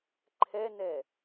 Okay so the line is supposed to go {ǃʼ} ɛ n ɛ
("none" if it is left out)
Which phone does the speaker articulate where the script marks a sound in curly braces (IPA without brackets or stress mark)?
ǃʰ